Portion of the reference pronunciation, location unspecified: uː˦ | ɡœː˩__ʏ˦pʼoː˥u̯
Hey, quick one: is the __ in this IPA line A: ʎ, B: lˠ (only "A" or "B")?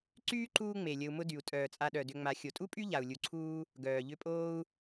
A